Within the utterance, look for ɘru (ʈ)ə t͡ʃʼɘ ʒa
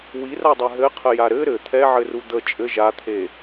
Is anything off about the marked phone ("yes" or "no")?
yes